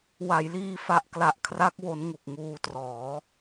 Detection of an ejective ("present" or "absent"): absent